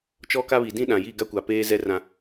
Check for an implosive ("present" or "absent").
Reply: present